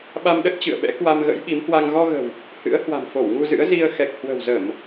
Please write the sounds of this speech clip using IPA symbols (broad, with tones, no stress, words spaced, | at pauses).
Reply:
ɓa˧m ɗə˦˥t̚t͡ɕɨ̰˧˨ə̯ɓɛ̰˧˥ kwa˧mɣə̰˧˥jɓi˨˦mhwa˧ŋ ɣɔ˧ɣə̤˨˩w | hɨ̰˧˥ə̯ hwa̤˨˩mfo˧˩w ŋu˧zɨ̰˧˥ə̯ zi˧ə̯ xɛ˨˩k̚hwə̤˨˩w zə˧˩˨m